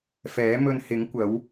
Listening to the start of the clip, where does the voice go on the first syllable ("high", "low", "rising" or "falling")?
rising